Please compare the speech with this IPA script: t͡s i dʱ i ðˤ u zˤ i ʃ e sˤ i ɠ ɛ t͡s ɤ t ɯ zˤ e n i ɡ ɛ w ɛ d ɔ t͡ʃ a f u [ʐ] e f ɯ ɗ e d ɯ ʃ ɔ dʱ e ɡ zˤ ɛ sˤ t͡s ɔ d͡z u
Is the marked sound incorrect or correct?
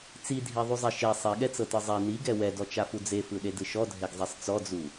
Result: incorrect: d͡z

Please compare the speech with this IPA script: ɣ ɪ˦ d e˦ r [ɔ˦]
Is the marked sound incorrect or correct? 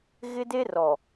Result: incorrect: ɔ˨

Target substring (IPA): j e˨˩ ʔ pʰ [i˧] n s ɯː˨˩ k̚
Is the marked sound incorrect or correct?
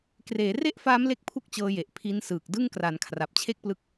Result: correct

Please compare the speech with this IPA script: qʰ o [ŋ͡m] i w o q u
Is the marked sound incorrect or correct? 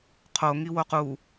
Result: incorrect: ŋ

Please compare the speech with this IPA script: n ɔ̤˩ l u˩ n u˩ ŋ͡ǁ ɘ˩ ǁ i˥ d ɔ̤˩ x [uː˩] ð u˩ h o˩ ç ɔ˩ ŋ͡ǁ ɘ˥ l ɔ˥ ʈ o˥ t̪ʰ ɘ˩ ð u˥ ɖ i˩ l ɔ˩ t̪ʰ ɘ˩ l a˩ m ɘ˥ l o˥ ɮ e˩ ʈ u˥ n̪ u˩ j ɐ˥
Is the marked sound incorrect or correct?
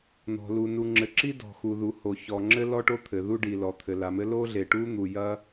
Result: incorrect: u˩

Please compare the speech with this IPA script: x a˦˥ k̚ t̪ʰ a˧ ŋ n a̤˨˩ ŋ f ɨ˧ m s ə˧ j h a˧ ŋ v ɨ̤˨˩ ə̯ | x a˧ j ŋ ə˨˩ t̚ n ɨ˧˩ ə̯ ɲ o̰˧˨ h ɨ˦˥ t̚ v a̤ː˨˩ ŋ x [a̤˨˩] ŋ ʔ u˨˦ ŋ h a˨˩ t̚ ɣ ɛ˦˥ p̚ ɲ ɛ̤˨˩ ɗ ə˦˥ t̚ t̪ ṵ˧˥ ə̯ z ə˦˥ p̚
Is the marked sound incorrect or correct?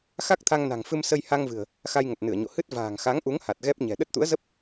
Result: incorrect: a˨˦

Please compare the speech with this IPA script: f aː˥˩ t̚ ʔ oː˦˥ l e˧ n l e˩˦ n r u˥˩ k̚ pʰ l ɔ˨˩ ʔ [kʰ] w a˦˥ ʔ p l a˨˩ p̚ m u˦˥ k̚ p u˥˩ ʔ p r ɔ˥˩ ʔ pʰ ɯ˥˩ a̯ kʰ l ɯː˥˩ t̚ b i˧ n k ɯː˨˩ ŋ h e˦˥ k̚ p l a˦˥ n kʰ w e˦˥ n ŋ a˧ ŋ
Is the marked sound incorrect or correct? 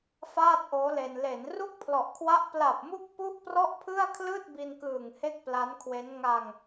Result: correct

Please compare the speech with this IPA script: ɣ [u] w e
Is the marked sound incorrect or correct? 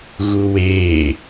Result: correct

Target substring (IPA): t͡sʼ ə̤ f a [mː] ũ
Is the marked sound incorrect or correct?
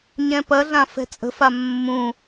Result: correct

